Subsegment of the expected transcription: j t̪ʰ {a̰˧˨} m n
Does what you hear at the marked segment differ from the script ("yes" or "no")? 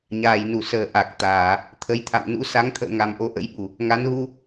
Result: no